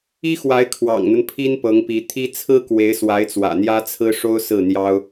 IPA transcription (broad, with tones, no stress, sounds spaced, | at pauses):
i˥ x w a˧˥ ɪ̯ kʰ w ɑ̰˨˩ ŋ n̪ ə˦ n pʰ i˥ n p ɤ˧˥ ŋ p i˧˥ t̪ʰ i˥ t͡sʰ ɹ̩˥ k w e˧˥ ɪ̯ s w a˧˥ ɪ̯ t͡s w ä̰˨˩ n̪ j ä˥ t͡sʰ ɹ̩˥ ʂ o˥ ʊ̯ s ɹ̩˥˩ n̪ j ɑ˥ ʊ̯